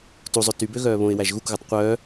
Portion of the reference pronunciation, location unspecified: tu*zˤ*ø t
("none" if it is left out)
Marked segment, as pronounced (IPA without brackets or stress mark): zˤ